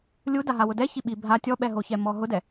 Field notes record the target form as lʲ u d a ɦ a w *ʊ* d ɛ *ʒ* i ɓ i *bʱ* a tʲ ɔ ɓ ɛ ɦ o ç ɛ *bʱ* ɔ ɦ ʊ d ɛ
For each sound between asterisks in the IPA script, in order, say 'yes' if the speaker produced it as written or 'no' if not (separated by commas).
yes, no, yes, no